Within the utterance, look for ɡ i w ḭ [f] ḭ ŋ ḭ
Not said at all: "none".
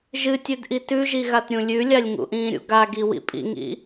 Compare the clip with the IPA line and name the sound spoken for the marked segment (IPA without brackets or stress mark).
pʼ